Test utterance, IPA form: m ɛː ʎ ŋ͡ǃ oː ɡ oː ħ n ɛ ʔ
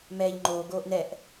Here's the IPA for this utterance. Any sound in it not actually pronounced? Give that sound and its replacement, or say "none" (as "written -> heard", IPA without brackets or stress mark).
ħ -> ʔ